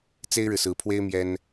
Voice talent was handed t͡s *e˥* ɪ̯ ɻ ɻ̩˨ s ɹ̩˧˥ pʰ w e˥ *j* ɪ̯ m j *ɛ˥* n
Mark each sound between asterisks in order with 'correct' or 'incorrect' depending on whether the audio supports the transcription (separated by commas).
correct, incorrect, correct